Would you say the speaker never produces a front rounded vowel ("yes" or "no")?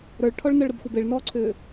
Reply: no